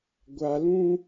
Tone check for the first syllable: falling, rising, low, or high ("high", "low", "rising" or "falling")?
high